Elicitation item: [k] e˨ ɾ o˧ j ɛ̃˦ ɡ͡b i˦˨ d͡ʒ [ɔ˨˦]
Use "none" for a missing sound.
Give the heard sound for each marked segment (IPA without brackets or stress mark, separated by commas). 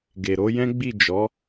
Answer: ɡ, ɔ˨˦